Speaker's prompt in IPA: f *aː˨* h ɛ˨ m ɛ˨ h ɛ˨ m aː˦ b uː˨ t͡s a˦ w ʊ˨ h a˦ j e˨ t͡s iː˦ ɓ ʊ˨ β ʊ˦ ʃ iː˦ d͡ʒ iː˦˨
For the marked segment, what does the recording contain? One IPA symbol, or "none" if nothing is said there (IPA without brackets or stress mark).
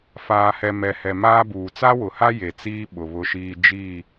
aː˨